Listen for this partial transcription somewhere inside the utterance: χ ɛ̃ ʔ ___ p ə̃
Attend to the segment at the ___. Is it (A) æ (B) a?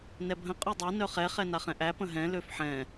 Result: A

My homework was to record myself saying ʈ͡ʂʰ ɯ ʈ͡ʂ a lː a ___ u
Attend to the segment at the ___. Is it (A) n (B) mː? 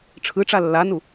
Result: A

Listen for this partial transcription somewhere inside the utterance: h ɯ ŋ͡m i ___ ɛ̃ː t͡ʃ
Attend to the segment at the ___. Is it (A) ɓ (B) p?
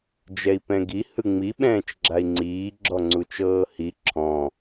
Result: A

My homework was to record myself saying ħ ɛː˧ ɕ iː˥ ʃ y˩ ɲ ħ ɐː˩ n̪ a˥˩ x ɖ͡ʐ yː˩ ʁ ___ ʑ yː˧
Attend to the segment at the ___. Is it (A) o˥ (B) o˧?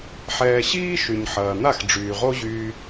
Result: A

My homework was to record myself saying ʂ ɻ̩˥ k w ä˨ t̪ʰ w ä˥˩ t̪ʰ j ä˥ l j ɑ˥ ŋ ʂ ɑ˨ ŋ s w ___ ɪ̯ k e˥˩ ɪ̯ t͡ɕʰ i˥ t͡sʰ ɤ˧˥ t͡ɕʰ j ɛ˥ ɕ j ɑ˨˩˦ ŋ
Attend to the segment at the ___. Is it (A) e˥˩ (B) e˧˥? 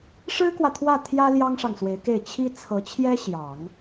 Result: B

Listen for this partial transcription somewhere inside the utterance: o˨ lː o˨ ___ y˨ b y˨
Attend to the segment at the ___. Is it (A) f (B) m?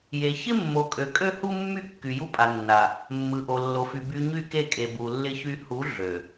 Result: A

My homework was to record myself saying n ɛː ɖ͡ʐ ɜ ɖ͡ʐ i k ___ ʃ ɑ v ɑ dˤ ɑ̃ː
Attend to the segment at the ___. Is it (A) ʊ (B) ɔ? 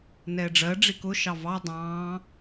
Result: A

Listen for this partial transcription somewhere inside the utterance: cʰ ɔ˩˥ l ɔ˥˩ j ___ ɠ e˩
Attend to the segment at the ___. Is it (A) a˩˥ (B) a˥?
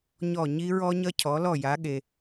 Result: A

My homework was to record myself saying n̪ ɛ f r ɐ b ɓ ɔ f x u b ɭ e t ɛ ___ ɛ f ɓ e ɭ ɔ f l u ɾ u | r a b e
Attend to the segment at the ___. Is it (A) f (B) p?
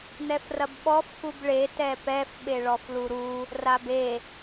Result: B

